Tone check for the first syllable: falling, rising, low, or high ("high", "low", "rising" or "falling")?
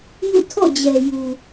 falling